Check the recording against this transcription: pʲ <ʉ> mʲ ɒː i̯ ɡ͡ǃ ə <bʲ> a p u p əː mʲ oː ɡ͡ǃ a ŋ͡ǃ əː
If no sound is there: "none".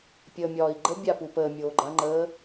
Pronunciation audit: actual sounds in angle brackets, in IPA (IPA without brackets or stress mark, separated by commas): ə, bʲ